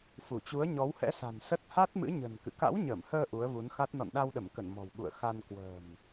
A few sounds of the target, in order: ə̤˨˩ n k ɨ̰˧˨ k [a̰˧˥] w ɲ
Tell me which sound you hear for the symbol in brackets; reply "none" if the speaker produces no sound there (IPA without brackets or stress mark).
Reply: a̰˧˥